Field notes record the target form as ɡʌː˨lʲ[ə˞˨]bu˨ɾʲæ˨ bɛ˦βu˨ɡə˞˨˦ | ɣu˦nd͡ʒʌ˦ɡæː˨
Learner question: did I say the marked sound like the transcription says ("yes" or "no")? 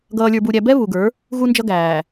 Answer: yes